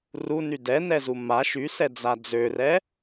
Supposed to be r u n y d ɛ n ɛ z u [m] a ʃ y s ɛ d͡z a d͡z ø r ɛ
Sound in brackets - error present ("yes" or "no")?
no